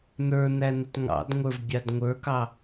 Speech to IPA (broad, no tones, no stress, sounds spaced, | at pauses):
n ə˞ n æ n ə t ŋ ɑ̰ d ŋʷ ə˞ v bʲ ɑ d ŋʷ ə˞ k ɑ